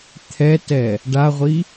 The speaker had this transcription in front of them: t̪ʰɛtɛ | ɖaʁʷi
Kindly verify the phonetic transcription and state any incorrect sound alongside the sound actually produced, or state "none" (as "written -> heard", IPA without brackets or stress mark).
none